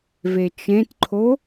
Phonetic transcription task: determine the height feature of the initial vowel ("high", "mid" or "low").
mid